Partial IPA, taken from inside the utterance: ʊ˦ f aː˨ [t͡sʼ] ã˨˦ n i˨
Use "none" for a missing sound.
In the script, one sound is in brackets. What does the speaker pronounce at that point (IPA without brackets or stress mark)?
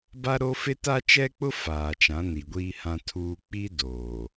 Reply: t͡ʃ